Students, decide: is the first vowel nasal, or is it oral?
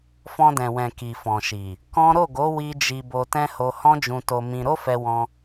nasal